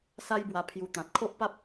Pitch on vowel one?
high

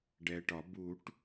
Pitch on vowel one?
low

